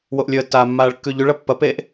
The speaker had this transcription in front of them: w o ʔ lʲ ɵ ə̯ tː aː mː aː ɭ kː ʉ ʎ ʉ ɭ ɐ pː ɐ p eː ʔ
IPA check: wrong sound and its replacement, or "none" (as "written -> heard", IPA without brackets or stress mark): none